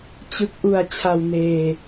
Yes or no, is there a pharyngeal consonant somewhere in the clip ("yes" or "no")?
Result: no